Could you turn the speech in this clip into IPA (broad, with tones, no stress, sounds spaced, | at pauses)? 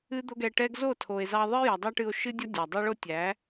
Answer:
ɨ˦ d̪ o˦ ɡ ɛ˧ ʈ ɛ˦ ɡ z o˦˨ tʰ o˨ e̯ z ɑ˧ ðˤ ɨ˦ j ɒ˨ dˤ ɑ˦ ʈ ɨ˧ o̯ ʃ ɨ˦ dʲ ɒ˦ dʲ ɒ˨ dˤ o˦ ɭ o˦ tʲ æ˨˦